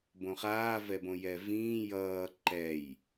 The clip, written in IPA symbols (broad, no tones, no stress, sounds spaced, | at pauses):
b õ χ aː v ɛ b õ j ɛ v ĩː j ʌː ǃ ɛ j